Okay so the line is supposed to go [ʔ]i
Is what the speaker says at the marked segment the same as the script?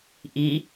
yes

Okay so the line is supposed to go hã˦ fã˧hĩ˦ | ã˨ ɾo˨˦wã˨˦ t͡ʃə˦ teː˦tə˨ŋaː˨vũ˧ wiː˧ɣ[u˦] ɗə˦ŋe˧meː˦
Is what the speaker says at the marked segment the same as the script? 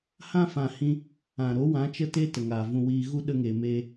yes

